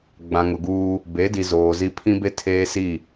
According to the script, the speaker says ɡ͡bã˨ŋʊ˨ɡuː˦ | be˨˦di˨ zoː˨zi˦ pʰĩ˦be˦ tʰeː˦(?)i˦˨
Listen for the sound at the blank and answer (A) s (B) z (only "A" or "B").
A